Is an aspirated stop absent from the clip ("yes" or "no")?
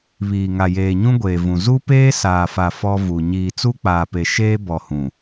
yes